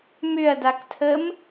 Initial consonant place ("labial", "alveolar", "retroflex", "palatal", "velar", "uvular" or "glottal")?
labial